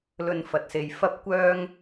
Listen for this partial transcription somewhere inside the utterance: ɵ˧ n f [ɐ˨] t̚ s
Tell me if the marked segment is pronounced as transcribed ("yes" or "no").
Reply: yes